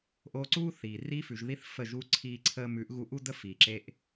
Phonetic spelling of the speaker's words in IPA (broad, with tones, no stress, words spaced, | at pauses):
ʔoː˧ǀuː˦ θiː˨ riː˧fʉ˨ʒði˧θ fə˦˨ʒu˦ ǀʰiː˧ǀʰəː˧mʉ˨˦ʔ ɣu˧ʔu˦də˦ fiː˨ǁe˦ʔ